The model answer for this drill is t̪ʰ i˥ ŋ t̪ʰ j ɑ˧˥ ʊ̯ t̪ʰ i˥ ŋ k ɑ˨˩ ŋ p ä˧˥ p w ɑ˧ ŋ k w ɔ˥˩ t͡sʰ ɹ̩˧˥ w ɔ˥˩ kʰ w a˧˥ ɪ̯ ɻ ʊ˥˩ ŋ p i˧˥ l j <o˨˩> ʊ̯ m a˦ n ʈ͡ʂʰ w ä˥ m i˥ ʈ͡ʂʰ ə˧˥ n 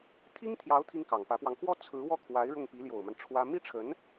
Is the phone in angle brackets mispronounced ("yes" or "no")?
no